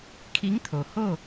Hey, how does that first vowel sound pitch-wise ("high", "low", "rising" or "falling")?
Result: rising